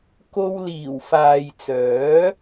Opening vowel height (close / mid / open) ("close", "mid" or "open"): mid